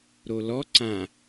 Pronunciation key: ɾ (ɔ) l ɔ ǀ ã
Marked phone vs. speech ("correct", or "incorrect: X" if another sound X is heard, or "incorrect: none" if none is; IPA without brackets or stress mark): incorrect: o